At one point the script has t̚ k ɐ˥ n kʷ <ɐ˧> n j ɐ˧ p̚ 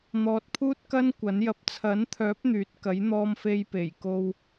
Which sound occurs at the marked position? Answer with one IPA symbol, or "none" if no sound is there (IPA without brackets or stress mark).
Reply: ɐ˨˥